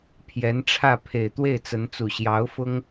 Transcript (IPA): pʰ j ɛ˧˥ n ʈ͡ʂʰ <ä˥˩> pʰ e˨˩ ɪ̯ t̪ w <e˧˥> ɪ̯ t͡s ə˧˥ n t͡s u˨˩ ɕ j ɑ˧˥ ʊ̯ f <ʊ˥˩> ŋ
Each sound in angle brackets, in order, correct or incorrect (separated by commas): correct, incorrect, incorrect